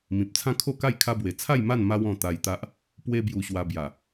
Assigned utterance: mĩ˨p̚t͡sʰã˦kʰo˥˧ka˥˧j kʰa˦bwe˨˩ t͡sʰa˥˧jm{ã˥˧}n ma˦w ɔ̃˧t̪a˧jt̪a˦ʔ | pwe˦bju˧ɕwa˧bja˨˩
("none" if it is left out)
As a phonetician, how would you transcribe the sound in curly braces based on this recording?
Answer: a˥˧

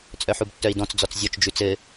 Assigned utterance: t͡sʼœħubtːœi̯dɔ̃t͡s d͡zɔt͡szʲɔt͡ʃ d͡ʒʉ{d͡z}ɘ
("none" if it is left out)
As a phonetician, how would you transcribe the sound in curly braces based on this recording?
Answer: t͡s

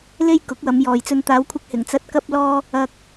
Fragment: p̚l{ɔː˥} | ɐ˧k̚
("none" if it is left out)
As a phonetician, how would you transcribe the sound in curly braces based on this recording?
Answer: ɔː˧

